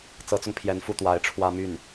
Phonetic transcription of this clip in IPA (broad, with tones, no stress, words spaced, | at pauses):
t͡sɤ˧˥t͡sʊ˧ŋpʰjɛ˧˥n fu˥˩t̪wa˧˥ɪ̯ʈ͡ʂʰwä˥ my˥˩n